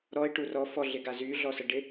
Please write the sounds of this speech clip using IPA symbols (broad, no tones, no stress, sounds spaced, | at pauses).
ɾ ɔ ɪ̯ ʈ u r ɔ f ɔ ɮ ɪ ɡ a z y ɮ ɔ s ə ɖ ɪ